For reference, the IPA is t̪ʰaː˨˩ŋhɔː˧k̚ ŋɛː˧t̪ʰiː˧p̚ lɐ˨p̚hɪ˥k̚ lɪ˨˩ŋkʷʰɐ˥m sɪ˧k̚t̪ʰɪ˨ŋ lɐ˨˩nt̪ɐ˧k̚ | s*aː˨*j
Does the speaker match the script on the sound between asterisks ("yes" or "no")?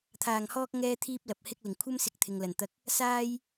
no